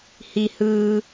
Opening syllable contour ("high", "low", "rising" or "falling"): low